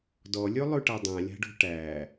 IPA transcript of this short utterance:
d ɔ lʲ ʉ lˠ ʉ ʈ a dˤ ã lʲ a̤ ɖ o̤ ʈ æ

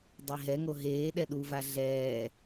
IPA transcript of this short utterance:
dˤ e ɦ ɛ ŋ o ɦ eː ɗ ɛ ɗ u v a ɮ ɛː

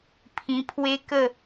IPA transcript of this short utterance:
pʰ ĩ˧ pʰ w e˦ k ə˥˧

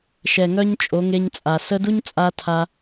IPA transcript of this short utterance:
ʃ ɛ˨ ŋ œ˦ ɲ t͡ʃʼ o˨˦ ŋ e˧ ɲ t͡sʼ a˨ s ə˧ d u˦ ɲ t͡sʼ a˧ tʰ a˦

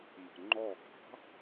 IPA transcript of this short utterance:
m ə̤ ŋ͡ǃ ɔ ɡ ɑ̤

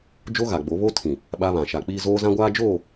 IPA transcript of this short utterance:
d͡ʒ o˦ ɣ a˨ ɡ͡b o˨˦ β o˦ tʰ ĩ˨ | ɓ a˦ β ã˨ ʃ a˨ k͡p iː˦ z oː˦ z ã˦ ɡʷ aː˦ d͡ʒ oː˦˨

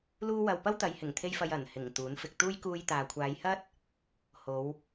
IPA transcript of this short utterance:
l uː˥ w ɐ˧ w p ɐ˥ w t̪ ɐ˨˧ j h ɪ˨˩ ŋ t̪ʰ e˧ j f ɐ˧ j ɐ˨˩ n h ɪ˨˩ ŋ t̪ uː˨˥ n f ɪ˨ k̚ t̪ uː˥ j k uː˧ j t̪ aː˨ kʷʰ aː˨˧ j h ɐ˥ t̚ | h o˨˧ w

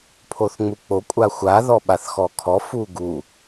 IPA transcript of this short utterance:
pʰ o θ ŋ͡m u k͡p o kʷʼ a xʷ a ð ɔ ɓ a θ x ɔ kʰ ɔ f u ɡ u

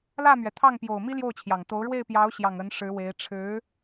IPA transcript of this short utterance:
l ä˥˩ m ɥ ɛ˩ t̪ʰ ɑ˥˩ ŋ p j o˨˩ ʊ̯ m i˥ l j o˥˩ ʊ̯ t͡ɕʰ j ɑ˨˩ ŋ t̪ o˧˥ ʊ̯ ɻ w e˥˩ ɪ̯ p j ɑ˧˥ ʊ̯ ɕ j ɑ˨˩ ŋ ə˧˥ n ʂ ɻ̩˧˥ w e˧˥ ɪ̯ ʈ͡ʂʰ ɻ̩˧˥

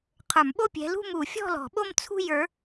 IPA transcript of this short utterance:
qʰ ə˞˨˩˦ m ɓ o˥˧ pʲ ɛ̤˨˦ l ṳ˥˧ m u˨˩˦ fʲ ɔ̤˥˧ l ɔ̤˨˩˦ ɓ o˥˧ m t͡sʰ ṳ˥˧ j ə˞˨˦

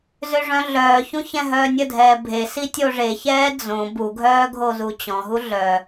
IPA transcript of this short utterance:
z ø ʐ œ̃ ɮ œː ç ũ ç ɛ̃ ɦ œː nʲ ə dʱ ɛː bʱ e s i tʲ o ʐ e ç ɛː d͡z õ b u ɡʱ œː ɡʱ o z u t͡ɕ ɔ̃ ɦ u ɮ œ

